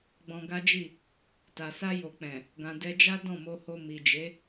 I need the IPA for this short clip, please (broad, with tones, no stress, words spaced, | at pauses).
ɡ͡bɔ̃˧ɡa˦d͡ʒi˦˨ | ta˨sa˧jo˨k͡pɛ̃˨ | ɡã˧ dɛ˧d͡ʒa˦ dɔ̃˦˨mo˧ho˧ mi˨d͡ʒe˨˦